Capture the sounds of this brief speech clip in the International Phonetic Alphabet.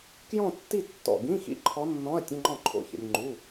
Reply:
k j ɔ̃˥˧ tː i˥˧ tː ɔ̰˥˩ ɡ ĩ˧˥˧ x ḭ˧˥˧ ǃʰ ɔ˧˥ nː ɔ̃˧˥˧ ɐ̯ tʲ ə̃˧˥˧ ŋ͡ǃ ɔ̃˥˩ ǃʰ o̰˧˥˧ ç ə̰˧ nʲ ŋ͡ǃ u˧˥˧

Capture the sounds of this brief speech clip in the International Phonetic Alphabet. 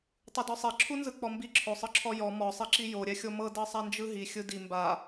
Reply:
tˤ ɯ d ɔ sˤ e ǁʰ u n z ɯ k͡p ɔ m b i ǁʰ o sˤ ɯ ǁʰ ɔ j ɔ m ɔ sˤ i ǁ i j o ɾʲ ɛ xʲ o m ɤ d ɤ sˤ a n d͡ʒ ɯ ɦ i xʲ ɯ d i m b a

